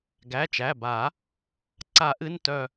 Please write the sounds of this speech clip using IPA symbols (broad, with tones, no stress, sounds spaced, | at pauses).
ɡ æ˩˧˩ t͡ʃ æ˩˧˩ b a˨˩˦ | ǀ a˨˩˦ ʔ ɨ˩˧˩ n t œ˦˨